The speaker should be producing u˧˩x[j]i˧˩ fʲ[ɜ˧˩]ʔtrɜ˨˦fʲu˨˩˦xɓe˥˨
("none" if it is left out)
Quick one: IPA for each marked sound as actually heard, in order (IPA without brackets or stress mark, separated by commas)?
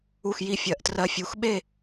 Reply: j, ɜ˨˩˦